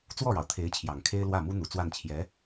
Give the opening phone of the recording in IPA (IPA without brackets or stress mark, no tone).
t͡s